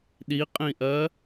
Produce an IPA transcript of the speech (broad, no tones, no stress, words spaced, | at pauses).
ɗiqʼĩʔɜ